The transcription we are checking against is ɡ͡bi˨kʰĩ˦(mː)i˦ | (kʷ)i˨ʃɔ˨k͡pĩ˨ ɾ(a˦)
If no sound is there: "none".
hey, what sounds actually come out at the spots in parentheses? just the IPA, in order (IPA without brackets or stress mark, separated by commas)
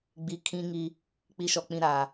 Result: ŋ, k͡p, a˨